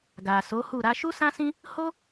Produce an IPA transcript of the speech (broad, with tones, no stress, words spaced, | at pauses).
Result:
ɡa˨so˨˦hu˦˨ ɾa˧ʃu˦sã˦sĩ˦ | ho˦